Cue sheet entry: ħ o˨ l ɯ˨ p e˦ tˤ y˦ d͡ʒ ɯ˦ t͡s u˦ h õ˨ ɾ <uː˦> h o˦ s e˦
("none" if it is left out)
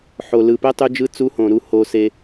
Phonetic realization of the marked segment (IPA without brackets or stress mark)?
u˦